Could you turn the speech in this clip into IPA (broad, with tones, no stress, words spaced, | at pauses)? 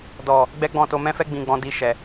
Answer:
dɔ˨ | ɡ͡bɛ˦ɡ͡bɔ̃˦˨to˧ mɛ̃˧fɛ˧ɡ͡bĩ˨ɡ͡bɔ̃˨ di˧ʃɛ˨